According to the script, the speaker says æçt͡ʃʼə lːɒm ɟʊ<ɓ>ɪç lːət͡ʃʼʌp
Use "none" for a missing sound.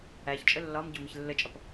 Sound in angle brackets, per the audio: m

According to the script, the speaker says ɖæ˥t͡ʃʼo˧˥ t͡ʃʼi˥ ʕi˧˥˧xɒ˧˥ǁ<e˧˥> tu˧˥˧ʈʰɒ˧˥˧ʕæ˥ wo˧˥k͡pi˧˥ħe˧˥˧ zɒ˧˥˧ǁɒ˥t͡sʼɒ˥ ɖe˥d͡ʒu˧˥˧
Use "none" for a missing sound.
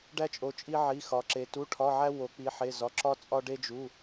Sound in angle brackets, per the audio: e˧˥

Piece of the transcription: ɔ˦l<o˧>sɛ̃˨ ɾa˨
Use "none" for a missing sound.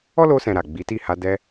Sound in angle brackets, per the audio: o˧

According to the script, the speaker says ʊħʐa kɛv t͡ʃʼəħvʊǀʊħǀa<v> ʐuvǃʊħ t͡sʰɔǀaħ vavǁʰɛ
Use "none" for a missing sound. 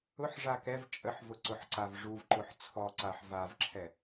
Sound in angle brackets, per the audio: v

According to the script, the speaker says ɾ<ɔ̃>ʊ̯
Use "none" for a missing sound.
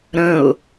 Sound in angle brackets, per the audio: ə̃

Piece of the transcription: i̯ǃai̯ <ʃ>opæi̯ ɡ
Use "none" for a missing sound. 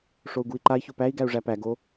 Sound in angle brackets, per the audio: ç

